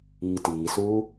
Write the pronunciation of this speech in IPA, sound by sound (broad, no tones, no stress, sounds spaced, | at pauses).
iː t iː s uː